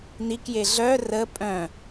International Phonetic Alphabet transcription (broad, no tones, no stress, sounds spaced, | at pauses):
n i k j e ɮ œ r ə pʼ œ̃